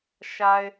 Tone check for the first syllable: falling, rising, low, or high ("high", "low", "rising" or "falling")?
low